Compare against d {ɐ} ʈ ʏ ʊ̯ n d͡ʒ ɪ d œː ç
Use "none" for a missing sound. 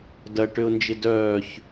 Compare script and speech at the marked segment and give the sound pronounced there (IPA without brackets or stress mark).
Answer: ɐ